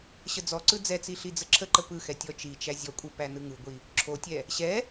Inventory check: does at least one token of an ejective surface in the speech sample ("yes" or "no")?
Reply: yes